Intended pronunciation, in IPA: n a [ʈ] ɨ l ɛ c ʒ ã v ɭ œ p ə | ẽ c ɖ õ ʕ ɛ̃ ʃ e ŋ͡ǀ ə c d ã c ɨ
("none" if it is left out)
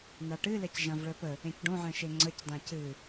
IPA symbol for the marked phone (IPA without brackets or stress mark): ʈ